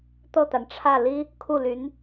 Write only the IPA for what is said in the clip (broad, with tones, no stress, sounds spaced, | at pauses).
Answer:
t̪ ɤ˥˩ t̪ a˩ n ʈ͡ʂʰ ä˥˩ l i˥ | kʰ u˥˩ l y˧˥ n